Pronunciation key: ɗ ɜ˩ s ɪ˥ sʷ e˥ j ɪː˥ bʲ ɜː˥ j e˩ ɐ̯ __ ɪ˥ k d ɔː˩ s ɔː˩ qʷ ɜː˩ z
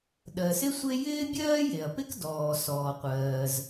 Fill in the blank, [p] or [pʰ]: p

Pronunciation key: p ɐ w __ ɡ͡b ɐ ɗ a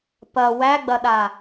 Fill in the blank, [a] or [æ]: æ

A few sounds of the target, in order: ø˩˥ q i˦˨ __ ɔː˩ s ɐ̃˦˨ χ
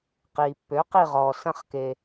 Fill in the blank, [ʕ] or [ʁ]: ʁ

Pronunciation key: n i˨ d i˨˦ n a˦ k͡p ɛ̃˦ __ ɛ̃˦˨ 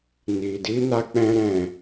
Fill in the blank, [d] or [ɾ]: ɾ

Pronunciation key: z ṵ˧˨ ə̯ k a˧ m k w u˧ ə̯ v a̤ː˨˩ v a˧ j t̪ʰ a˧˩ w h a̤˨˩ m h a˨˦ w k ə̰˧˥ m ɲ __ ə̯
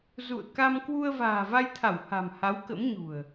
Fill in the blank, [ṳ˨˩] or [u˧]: ṳ˨˩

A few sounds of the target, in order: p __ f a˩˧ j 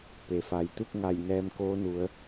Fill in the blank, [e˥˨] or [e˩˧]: e˩˧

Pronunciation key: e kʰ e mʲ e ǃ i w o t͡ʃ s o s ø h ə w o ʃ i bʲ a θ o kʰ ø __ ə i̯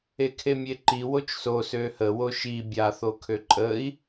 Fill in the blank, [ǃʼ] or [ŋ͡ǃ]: ǃʼ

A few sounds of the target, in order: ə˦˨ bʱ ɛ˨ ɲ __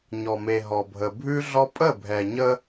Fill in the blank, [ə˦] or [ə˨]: ə˦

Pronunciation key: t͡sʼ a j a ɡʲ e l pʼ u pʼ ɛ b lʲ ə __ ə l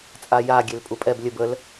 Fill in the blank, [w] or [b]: b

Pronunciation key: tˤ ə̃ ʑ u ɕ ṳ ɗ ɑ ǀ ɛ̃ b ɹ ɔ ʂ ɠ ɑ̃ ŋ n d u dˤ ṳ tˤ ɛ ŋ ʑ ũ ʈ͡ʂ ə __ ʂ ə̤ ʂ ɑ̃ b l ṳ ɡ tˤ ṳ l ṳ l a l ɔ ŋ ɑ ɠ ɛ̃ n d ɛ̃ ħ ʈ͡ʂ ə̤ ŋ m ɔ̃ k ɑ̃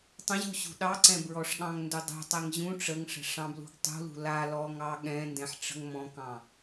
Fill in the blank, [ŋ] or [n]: ŋ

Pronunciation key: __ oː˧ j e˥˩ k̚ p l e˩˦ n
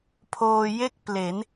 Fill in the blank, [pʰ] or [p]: pʰ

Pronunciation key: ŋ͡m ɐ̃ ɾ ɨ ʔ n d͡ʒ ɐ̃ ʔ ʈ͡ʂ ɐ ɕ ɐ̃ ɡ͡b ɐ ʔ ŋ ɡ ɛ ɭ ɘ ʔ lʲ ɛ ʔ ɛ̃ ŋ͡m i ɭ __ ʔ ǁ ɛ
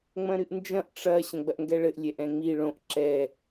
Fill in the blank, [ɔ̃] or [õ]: õ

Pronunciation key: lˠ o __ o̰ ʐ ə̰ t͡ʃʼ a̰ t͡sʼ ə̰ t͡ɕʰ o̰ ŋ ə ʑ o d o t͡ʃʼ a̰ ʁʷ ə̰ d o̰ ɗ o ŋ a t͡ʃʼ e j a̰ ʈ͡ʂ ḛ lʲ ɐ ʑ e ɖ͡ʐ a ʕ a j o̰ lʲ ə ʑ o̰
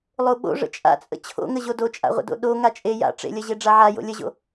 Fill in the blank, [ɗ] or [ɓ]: ɓ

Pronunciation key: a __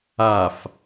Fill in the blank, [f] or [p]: f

